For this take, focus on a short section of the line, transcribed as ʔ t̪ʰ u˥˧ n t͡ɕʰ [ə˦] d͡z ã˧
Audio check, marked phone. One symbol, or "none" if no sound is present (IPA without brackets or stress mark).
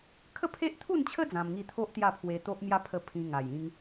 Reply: ə˦